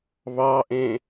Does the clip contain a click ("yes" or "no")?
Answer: no